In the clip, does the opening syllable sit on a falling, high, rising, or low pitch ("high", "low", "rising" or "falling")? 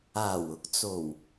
low